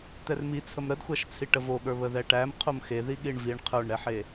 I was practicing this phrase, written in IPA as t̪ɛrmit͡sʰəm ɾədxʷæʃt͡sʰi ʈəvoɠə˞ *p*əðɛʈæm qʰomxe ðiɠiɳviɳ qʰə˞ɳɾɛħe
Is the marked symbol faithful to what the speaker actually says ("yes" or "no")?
no